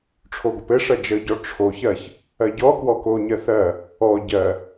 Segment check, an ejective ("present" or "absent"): absent